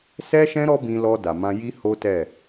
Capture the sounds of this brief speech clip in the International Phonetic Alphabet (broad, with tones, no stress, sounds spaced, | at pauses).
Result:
s ɛ˦ ʃ ɛ̃˦ ɾ ɔ˦ b ĩ˧ l ɔ˧ d a˨ m ã˧ j i˦ h o˦ t ɛ˦˨